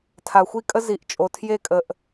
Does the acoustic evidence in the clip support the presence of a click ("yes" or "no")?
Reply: no